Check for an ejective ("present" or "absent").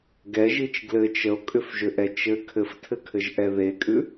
present